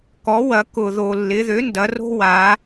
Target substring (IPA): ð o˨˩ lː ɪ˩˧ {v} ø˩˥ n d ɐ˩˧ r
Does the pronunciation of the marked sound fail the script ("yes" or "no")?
yes